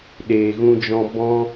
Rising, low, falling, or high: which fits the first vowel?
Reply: low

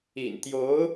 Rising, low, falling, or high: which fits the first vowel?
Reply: low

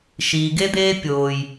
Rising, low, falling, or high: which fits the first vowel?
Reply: low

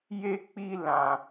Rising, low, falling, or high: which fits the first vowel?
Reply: high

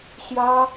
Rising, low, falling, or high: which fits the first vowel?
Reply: high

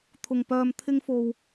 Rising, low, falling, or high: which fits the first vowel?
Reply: low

